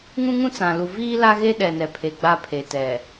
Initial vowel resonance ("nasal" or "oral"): nasal